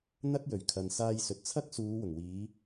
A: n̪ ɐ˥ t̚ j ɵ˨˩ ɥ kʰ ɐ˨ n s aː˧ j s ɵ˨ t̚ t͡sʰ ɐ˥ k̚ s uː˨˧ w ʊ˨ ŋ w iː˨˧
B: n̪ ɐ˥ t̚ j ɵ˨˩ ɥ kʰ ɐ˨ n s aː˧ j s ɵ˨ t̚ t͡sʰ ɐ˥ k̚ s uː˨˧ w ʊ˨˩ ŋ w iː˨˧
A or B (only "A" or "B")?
B